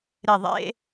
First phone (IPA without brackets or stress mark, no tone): ɾ